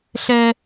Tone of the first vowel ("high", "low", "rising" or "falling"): high